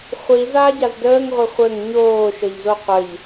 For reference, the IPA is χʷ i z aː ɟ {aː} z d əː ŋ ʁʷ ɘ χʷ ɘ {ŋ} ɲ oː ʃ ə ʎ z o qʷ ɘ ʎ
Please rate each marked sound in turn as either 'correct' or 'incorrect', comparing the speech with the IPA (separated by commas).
incorrect, correct